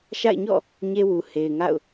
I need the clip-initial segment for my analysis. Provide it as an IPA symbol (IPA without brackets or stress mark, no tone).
ʃ